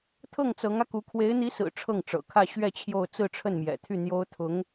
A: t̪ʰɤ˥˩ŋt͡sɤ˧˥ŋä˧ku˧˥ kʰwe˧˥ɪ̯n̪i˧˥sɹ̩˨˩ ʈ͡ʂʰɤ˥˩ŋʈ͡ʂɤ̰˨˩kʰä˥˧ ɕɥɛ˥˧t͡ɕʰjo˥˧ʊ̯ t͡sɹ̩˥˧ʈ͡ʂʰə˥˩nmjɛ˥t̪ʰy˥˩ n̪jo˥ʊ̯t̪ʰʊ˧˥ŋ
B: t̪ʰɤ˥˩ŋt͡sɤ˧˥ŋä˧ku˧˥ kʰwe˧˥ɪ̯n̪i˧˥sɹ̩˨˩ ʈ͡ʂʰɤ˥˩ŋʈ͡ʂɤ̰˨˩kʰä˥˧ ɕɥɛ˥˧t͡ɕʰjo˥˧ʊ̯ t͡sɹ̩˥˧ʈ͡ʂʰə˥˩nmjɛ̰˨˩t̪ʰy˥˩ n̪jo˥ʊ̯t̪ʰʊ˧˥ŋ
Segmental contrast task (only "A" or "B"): B